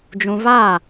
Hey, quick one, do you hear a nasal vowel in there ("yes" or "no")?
yes